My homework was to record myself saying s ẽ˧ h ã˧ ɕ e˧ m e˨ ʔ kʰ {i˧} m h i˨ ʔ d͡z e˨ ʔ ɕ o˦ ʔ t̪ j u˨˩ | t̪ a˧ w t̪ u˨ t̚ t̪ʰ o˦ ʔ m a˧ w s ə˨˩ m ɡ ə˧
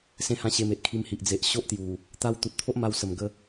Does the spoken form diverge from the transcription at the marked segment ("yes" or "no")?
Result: no